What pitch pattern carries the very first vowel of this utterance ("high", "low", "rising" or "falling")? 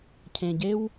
low